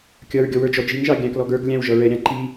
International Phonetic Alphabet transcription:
kʲ ʌ ɹ ɡʲ ɔ w ə˞ d͡ʒ ɔ d͡ʒ i ŋ ʒ ɑ ɡʲ æ̃ k l ɔ ɡ ə˞ ɡ lʲ æ̃ w ʒ ʌ ɹ ɛ ɾʲ ɑ̃ ǃ i

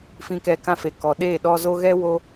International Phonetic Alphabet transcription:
f ĩ˧ k ɛ˧ k ã˧ f e˨ k ɔ˨ ɗ eː˦˨ ɗ ɔ˧ z o˧ ɣ ɛ˦ w o˧

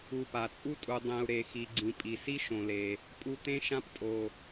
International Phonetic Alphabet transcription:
u˨ p a˩ t͡sʼ u˦ tʼ u˨ dˤ ẽ˨ u̯ ɾ e˨ x i˨ ɡ͡ǀ ĩ˩ pʼ i˩ s i˥ ʃ õ˨ l e˩ | pʼ u˦ t̪ ẽ˥ ʃ ã˦ p tʼ o˩

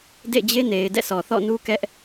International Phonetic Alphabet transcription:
d ḛ˦˨ d͡ʑ e˦ n e˨ ɪ̯ d ɛ̰˦˨ sʰ ɔ˨ θ ɔ̰˦˨ n u˦ k ɛ˦ ʔ

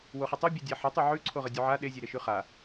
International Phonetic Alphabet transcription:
w o χ ə tˤ o bʲ e dʲ a ħ ə tˤ ʉ ʕ ʉ ǀʰ o ʁ ə dʲ ʉ ʕ a ɗ e zʲ e ɾ e ʃ ʉ χ a

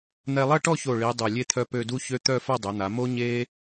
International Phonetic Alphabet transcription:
n̪ ɛ˧ lˠ ɐ˥˧ ʈ ɔ˥˧ ç o˧˩ ɭ i˩˧ dˤ œ˧˩ lʲ e˥ t̪ʰ œ˥˧ p ø˥˧ d u˥ ç ø˥ t̪ œ˥˧ f ɐ˥˧ dˤ ø˩˧ n̪ a˩˧ m o˥ ɲ e˥

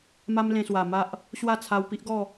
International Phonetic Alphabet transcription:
m a˦ m l ẽ˧ s w a˨˩ m a˦ ʔ | ɕ w a˥˧ t͡sʰ a˧ w p i˦ ʔ ɡ ɔ˥˧

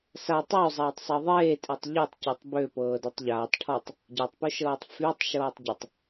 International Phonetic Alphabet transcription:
s a tˤ ø zˤ aː tˤ sˤ əː ðˤ eː tʼ e tˤ ʎ ɤ tˤ c ø tˤ b ø p ɤː d ø tˤ ʎ aː tˤ ʈʰ ɔ tˤ | ɟ a tˤ p u ʃ ɤː tˤ f y tˤ ʃ ɤː tˤ ɟ ə tˤ

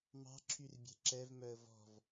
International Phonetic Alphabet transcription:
m ɑ̤ ǁʰ y r bʲ ɛ̤ ǁ ɛ v m œ ə̯ v ɔ̤ v

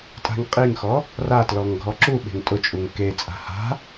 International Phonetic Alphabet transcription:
tʼ a̤ ŋ qʼ i ŋ x ɔ | r a t l ɔ ŋ ɡʱ ɔ ǁ u ɓ e̤ ŋ tʼ ʊ t͡ʃʼ u ŋ k e t͡sʼ a̤ h a̤

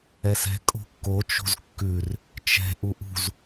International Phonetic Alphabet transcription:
ɛ s ɛ̤ kʼ o̤ kː o t͡ʃ o̤ z kː ʉ r | t͡ʃ ɛ̤ ʔ u ʔ ṳ z

